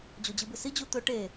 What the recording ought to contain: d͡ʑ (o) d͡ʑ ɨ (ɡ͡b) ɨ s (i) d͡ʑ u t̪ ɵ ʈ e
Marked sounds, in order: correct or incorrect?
correct, incorrect: b, correct

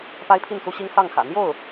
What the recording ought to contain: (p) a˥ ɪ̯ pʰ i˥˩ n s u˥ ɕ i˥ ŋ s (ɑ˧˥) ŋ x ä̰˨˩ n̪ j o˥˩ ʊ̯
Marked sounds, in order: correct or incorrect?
correct, incorrect: ɑ˥˩

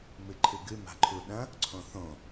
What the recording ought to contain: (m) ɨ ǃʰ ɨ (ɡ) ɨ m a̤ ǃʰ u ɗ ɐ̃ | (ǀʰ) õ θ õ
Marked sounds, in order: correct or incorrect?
correct, correct, correct

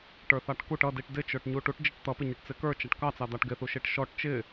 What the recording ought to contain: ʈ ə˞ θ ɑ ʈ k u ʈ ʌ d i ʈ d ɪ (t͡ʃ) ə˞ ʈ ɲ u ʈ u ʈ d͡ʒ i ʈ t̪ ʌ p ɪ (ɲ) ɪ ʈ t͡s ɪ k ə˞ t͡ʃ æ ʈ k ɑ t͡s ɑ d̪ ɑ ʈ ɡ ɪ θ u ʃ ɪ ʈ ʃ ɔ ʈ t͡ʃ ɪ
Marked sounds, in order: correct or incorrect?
correct, correct

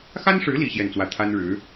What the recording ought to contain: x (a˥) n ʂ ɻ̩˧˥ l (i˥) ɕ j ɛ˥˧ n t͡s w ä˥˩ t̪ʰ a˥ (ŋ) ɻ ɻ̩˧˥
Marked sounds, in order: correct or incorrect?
correct, correct, incorrect: n

